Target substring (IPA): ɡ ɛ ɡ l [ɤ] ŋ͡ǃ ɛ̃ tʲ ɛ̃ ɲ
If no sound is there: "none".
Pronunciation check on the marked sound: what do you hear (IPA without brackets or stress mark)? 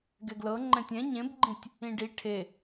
ɤ